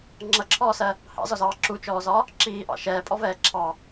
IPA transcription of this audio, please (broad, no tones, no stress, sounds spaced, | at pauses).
ŋ͡ǁ ʌ ǁʰ ɔː s ɜ | h ɑ̰ z ɔ z ɑː ǁ u t͡ʃ ɔː z ɒ | ǁ iː ʔ ɑ̰ ʃ ɛː pʼ ɔ v ɛː ǁʰ ɑ